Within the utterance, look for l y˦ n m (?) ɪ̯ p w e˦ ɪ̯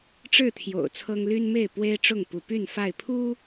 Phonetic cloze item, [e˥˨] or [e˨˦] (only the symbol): e˥˨